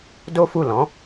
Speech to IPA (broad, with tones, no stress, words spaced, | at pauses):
do˦fu˦˨lɔ̃˨˦